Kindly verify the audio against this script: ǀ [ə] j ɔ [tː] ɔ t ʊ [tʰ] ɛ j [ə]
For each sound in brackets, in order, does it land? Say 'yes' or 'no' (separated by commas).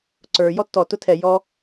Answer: no, yes, yes, no